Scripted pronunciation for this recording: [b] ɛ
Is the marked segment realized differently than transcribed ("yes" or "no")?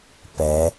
yes